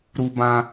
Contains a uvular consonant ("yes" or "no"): no